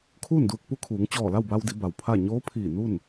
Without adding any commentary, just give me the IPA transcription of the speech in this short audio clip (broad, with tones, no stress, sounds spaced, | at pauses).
kʰ uː˥˨ n d uː˧ k̚ p u˧˥ kʰ uː˩˧ ŋ t͡ɕ ɔː˧˩ l a˥˨ w b a˧ w d i˩˧ b a˩ w pʰ a˥˨ ɲ oː˧˥ pʰ iː˧˩ n u˥˨ n